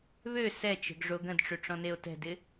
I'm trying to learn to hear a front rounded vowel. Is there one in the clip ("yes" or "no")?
yes